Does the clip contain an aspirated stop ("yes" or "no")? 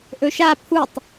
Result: yes